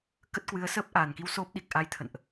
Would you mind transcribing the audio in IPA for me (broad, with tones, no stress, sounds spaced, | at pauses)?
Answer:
k ə˦˥ t̚ k w ɨ˨˦ ə̯ s əː˦˥ p̚ ʔ aː˨˩ n k i˧ w s o˦˥ p̚ ɗ i˨˩ k̚ ʔ a˧ j t̪ʰ ə̰˧˨ n ʔ